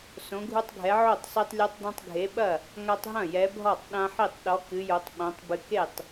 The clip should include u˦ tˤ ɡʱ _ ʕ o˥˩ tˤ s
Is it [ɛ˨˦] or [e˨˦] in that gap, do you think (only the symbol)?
ɛ˨˦